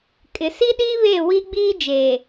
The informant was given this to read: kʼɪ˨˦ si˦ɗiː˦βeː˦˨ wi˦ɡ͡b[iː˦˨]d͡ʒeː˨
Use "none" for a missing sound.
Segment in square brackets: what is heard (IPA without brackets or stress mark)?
iː˦